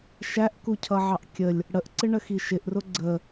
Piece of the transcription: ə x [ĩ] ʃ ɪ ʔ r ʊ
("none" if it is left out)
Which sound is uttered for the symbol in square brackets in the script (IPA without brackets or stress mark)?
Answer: i